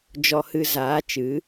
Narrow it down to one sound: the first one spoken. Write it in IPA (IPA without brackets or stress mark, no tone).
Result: d͡ʒ